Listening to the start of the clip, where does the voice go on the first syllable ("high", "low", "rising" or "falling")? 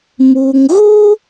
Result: low